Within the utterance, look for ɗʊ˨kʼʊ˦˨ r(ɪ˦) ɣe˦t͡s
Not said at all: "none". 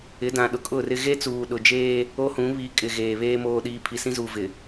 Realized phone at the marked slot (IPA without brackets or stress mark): ɪ˦